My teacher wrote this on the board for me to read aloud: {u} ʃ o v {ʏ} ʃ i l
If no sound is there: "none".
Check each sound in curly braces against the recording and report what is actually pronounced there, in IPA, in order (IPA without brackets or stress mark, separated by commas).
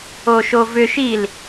o, ʏ